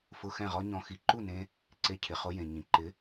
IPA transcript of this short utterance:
fʊ˧ xɛ̃˥˩ʁɔ˥ɲɔ̃˧ xi˩˥ǃu˥˩nẽ˧ | ǀe˧cʰɪ˩χo˧ jẽ˩ɲĩ˩ ǃɪ˩˥

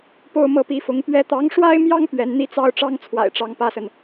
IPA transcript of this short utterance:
po˥˧ʊ̯mɤ˥˩pi˧˥fʊ˧˥ŋ pɥɛ˧˥t̪ɑ˧˥ŋʂwa˥ɪ̯mjɑ˥ŋ pɥɛ˧˥nn̪i˥t͡sɑ˥ʊ̯ ʈ͡ʂɑ˥ŋt͡sʰwa̰˨˩ɪ̯ ʈ͡ʂɑ˧˥ŋpä˥sə˨n

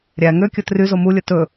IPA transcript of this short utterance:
ɾʲæ ŋøkʲɵ tryzo mulʲɵ tɵ

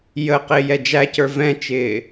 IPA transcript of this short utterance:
jə qɪːjɛd͡ʒæcə˞ vɛ̃t͡ʃɪː

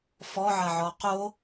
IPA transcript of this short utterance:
fɔʕɐʕɔ qo

